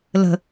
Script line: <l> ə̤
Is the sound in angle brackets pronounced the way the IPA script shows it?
yes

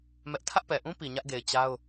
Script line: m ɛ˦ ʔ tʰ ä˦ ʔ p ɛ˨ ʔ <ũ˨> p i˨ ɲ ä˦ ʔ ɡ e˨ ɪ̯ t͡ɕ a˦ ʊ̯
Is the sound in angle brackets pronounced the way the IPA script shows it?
no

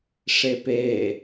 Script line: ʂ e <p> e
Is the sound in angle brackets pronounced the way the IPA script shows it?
yes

